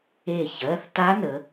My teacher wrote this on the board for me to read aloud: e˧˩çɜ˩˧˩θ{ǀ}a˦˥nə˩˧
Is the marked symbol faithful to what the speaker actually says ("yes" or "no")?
no